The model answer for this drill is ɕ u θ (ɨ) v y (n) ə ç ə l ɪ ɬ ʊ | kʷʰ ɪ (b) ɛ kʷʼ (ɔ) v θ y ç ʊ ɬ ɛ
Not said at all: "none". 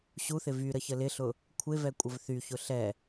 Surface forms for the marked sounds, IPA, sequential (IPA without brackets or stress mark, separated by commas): ɪ, ɾ, v, ə